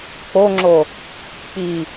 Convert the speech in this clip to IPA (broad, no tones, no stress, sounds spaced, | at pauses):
k͡p o ŋ͡ǁ o | k͡p i